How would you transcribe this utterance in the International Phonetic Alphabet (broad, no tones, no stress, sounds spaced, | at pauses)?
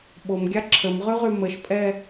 ɓ o m ɡʲ a ǁʰ ə m ʁ y ʁ y m ə ʃ pʼ ɛ